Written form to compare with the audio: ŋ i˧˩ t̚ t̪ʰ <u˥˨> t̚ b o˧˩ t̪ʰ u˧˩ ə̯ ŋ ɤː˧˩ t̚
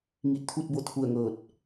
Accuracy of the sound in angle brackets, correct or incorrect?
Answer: correct